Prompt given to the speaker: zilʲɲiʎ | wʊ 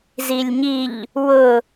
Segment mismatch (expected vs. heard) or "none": none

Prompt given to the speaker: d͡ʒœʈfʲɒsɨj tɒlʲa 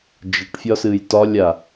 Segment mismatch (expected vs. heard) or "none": œ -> ə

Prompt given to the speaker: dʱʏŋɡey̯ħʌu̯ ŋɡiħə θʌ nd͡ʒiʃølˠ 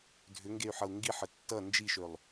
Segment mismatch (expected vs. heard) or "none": θ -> tː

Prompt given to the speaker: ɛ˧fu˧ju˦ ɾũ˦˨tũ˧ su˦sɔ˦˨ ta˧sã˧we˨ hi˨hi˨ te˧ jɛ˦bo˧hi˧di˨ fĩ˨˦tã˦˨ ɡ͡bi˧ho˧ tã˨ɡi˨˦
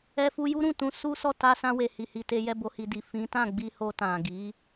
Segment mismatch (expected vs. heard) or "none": none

